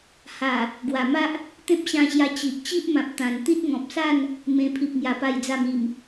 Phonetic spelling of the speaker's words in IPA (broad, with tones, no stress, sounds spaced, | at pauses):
h a˨˩ | ɡ w a˨˩ m a˦ ʔ | t̪ ẽ˦ p̚ ɕ ã˧ ɕ j a˧ t͡ɕ i˨ ʔ t͡ɕ i˦ ʔ m ã˨ p̚ t̪ ã˨˩ n t̪ i˦ t̚ ŋ ɔ̃˨ p̚ s a˥˧ n | m ẽ˧ pʰ i˨ p̚ ŋ j a˨˩ p a˨˩ j d͡z a˨˩ m i˨˩ m